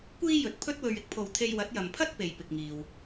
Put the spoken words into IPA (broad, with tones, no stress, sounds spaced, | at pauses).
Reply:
kʷ iː˥ j ɵ˨ t̚ pʰ ɵ˥ t̚ w ɵ˨ ɥ ɪ˨˥ k̚ pʰ o˨ w t̪ʰ e˧ j w ɐ˨˥ t̚ j ɐ˨ m pʰ ɐ˥ t̚ p e˨ j p ɪ˨ k̚ ŋ iː˨ w